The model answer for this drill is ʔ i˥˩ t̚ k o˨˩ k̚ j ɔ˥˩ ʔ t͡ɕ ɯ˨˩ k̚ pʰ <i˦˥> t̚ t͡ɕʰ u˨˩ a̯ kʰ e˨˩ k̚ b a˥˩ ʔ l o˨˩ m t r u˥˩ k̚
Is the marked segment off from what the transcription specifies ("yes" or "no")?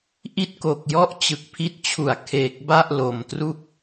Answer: no